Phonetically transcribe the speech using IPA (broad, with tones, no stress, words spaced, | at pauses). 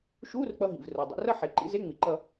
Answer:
ʃuː˧˥˧rk͡pʌ˧ ɦḭ˩vro˩ dˤḭ˩˧rʌ˥˧ħe˩˧ ǃḭ˧˥˧ze˧˥˧ŋ͡mi˩ ǃʌ˥˧